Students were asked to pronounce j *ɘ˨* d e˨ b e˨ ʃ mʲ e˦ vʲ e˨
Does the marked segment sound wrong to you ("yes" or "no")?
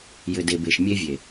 no